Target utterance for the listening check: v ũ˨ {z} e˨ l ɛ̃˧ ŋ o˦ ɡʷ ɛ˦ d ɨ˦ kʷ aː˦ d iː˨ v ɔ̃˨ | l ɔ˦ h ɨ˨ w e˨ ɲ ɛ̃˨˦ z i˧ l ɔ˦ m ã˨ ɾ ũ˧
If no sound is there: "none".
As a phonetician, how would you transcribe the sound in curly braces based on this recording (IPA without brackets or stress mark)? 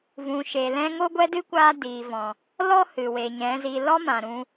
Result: ʃ